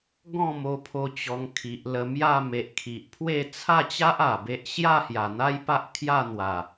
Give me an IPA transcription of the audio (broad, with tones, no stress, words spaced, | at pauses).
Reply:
ɡɔ̃˥˧mo˧pʰo˧ t͡ɕɔ˧ŋkʰi˨ʔlə˧ mja˥˧me˨ʔ kʰi˨ʔpʰwe˥˧ t͡sʰa˥˧t͡ɕa˦ʔ a˨˩be˦ʔ ɕja˥˧ hja˨˩n̪a˦j pa˦ʔkʰja˥˧ n̪wa˨˩